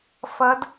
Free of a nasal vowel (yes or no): yes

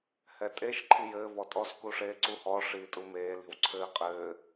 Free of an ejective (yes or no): no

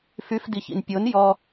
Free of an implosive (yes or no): yes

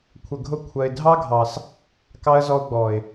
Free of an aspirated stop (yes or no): no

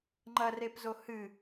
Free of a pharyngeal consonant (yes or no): yes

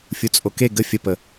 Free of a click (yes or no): yes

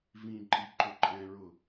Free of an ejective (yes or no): no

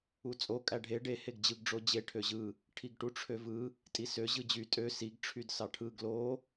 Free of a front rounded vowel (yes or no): no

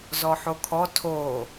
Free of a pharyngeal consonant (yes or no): no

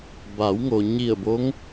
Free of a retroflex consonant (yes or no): yes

